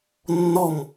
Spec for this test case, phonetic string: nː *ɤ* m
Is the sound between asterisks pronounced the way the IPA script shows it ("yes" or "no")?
no